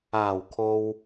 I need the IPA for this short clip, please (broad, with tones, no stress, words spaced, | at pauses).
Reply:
aː˨˩wkʰo˨w